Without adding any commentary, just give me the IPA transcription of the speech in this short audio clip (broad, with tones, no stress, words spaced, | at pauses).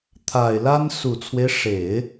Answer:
t̪ʰa˨˩ɪ̯la˥n su˨˩t͡sʰwe˦ɪ̯ʂe˨˩˦ɪ̯